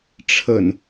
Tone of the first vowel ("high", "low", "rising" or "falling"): low